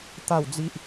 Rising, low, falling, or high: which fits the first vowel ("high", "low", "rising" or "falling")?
falling